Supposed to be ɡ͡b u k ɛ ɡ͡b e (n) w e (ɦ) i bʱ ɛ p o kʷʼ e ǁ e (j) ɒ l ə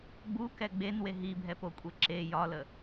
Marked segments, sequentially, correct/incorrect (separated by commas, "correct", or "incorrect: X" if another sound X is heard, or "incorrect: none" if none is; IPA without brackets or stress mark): correct, correct, correct